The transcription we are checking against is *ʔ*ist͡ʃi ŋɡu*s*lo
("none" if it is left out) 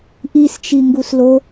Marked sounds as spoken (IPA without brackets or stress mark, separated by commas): ʔ, s